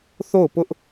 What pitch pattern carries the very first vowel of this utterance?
falling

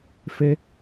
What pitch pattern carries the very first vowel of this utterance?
high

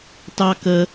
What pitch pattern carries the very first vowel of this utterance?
high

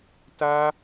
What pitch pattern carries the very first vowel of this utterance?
high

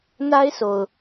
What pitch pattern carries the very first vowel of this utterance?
high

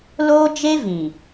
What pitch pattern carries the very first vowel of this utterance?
high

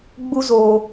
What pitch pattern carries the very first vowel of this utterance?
high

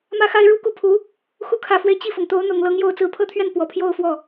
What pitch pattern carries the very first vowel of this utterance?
high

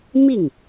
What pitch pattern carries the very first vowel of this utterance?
falling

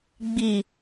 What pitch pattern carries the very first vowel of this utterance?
low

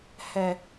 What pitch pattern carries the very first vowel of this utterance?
low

